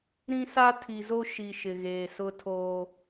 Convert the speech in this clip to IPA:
ɾ ĩ˦ s a˦ tʰ i˨ z o˦ ʃ i˨ ʃ ɪ˨ ɣ eː˨ s ʊ˦ tʰ oː˦

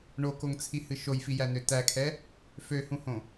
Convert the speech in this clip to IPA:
ɳ o k o ŋ t͡sʰ i h ɨ ʃ o j f i j æ n ø t æ kʰ ɛ | f ø h ũ h õ

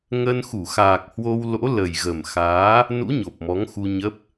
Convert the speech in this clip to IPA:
ŋ ə˧ n x u˧˩ x aː˨˩ k̚ h w o˧ w l o̰˧˥ l ə˨˩ j ɣ ə˨˩ m x aː˨˦ | n ṵ˧˥ ɲ o˨˩ p̚ m ɔ˨˦ ŋ x u˧ ɲ ə˦˥ p̚

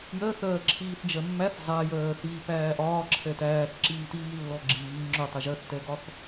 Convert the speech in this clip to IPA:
j ɜ θ ɜː ǁʰ iː θ d͡ʒ ɜ mː æ θ zˤ æ j ɜː θ iː p æː ʔ ɒː ǁʰ ɛ t æː θ ǁ iː t iː lː ɔ ɡ͡ǁ iː ŋ͡ǁ ʊ tˤ ɛ ʒ ɜ θ t ɛ ɡ ɒ θ

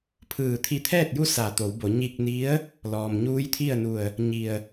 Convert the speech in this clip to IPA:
pʰ ɯː˧˩ t̪ʰ i˧ t̪ʰ ɛː˥˨ t̚ j u˥˨ s a˧˩ t̪ o˩˧ w b o˩˧ ɲ i˧ k̚ n i˧˥ ə̯ | l ɔː˩ m ɲ uː˧˥ j t̪ʰ i˥˨ ə̯ n u˧˩ ə̯ | ɲ i˧˩ ə̯

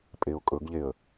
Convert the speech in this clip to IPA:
pʼ e ʊ̯ kʼ ɵ ɡ ʎ e ə̯

